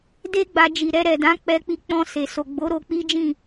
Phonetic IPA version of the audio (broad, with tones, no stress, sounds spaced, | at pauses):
d e˦ ɡ͡b a˧ d͡ʒ i˨ ɾ ɛ˧ ɾ ɛ˨ d ã˨˦ k͡p ɛ˧ k͡p i˧ k͡p ɔ̃˧ s e˨ s o˨ ɡ͡b o˨˦ ɾ o˧ k͡p i˦ d͡ʒ ĩ˦˨